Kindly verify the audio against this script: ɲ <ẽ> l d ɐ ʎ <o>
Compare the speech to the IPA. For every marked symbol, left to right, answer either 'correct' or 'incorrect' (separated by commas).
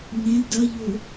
correct, correct